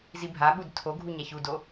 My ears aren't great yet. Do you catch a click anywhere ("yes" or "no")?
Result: no